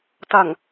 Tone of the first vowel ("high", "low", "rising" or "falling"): low